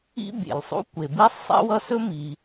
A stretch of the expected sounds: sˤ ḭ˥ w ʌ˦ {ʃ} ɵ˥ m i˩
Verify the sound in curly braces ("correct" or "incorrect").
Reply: incorrect